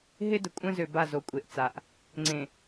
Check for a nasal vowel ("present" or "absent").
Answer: present